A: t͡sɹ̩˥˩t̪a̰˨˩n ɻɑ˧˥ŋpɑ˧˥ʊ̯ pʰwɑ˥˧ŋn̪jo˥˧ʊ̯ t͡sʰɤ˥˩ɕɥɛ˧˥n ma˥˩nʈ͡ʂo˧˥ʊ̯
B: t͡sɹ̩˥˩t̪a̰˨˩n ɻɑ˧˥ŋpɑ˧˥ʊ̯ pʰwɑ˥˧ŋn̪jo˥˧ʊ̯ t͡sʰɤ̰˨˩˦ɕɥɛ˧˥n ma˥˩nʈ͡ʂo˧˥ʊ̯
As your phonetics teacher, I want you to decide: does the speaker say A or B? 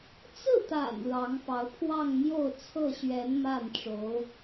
A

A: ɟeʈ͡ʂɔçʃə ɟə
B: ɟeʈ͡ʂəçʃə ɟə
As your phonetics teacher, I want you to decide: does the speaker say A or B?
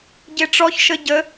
A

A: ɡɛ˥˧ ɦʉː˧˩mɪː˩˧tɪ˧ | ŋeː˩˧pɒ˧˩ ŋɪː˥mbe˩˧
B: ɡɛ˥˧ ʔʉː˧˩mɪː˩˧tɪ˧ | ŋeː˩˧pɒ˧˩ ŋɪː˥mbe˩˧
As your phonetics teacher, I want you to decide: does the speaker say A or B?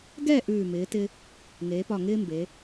B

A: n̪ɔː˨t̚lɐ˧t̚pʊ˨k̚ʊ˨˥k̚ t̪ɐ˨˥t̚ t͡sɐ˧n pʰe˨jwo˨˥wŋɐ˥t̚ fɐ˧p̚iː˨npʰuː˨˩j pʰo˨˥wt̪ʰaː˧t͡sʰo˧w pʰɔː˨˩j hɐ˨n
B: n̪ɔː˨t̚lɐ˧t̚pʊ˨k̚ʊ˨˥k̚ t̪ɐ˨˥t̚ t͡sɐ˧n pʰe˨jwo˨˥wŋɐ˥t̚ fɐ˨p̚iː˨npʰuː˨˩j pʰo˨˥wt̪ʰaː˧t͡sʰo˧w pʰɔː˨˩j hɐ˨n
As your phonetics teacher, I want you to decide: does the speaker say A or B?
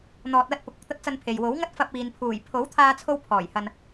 A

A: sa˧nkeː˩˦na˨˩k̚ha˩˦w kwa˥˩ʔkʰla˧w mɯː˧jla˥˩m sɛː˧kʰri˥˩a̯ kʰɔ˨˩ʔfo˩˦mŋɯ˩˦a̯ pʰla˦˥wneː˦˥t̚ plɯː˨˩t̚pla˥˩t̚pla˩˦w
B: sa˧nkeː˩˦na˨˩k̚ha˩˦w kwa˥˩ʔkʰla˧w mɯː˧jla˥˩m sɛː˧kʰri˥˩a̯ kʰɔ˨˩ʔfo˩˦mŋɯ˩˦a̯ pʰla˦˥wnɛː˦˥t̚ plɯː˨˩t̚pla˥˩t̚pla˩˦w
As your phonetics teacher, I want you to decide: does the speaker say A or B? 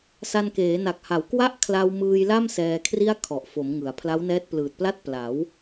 B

